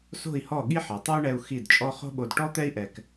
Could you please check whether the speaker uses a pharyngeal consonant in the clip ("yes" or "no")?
yes